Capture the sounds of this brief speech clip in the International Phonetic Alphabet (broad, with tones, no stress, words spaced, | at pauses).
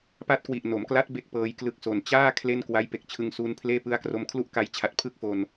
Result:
pa˦˥t̚kwi˨˩ʔno˩˦mkla˦˥t̚ be˥˩k̚pɤː˧jklɯ˦˥k̚so˨˩n t͡ɕaː˥˩ kʰle˥˩nkwa˦˥j pe˨˩k̚t͡ɕʰɯ˧ŋsuː˧npʰleː˥˩ pɯ˦˥a̯kro˧m kʰlu˥˩ʔka˧jt͡ɕʰa˨˩t̚ pʰɯ˥˩k̚ fo˧n